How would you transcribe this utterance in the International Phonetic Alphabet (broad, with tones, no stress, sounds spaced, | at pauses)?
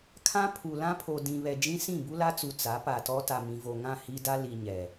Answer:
kʰ ã˦ pʰ u˨ l ã˦ pʰ o˨ d ĩ˨ β ɛ˨ d͡ʒ ĩ˦ s ĩ˦˨ b u˦ l a˦ t͡s u˨ t͡s a˨˦ p a˨ t ɔ˦ t a˨ m ĩ˨ v o˨ ŋ ã˦˨ h i˦ d a˦ l i˨ ɲ ɛ˨